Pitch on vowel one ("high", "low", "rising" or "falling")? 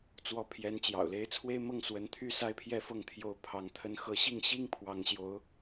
rising